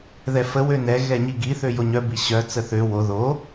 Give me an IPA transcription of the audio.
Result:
ðɛfə wønɛ ɣɛɲiɡi θøjoɲœ biɕœ t͡səθø wo ðo

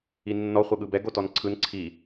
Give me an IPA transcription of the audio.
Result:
inːɔ χʷɤɠɯbɛ ɡotɔnǀʰɯn ǀʰi

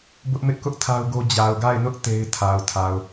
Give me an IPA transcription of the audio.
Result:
bʊ˦ʔmɪ˦ʔkʊ˦ʔ tʰa˦ʊ̯ɡo˦ d͡ʑa˨ʊ̯ɡa˦˨ɪ̯nʊ˦ʔ te˦ɪ̯tʰa˨ʊ̯tʰa˨ʊ̯

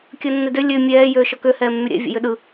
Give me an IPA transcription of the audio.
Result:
kʲəːnːedø lʲø mʲɛː jøːʃɔkø hɛːmːyɾʲɛ̰ vʲɛ̰jøɗɯ

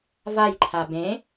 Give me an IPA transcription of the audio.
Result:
vajǃʰa bẽ

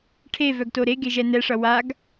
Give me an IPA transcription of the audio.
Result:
ʈʰevœɡto ɾeɡeʒɛ nɛʂʌ waɡ

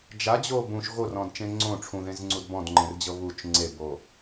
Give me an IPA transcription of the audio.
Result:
d͡ʒad͡ʑo bũʃ ɣorɔ̃dt͡ʃẽ ŋ͡ǀõ ʈ͡ʂʰũðẽzŋ͡ǀud bɔ̃dŋ͡ǃẽrd͡ʑɤ βut͡ʃ ŋ͡ǀebo

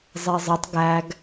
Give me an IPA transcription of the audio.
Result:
zˤezˤetˤ ɡæɡ

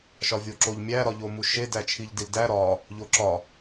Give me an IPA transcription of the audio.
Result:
ʃɒvʲoǁoʎmʲæ ɾɒʎomuʃe dæt͡ʃʰiʎdildæ ɾɒ | ʎoǁɒ

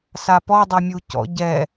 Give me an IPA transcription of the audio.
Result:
sapɔ dˤɤmʲucɔ̰ ɟɛ

